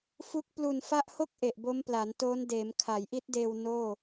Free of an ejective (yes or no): yes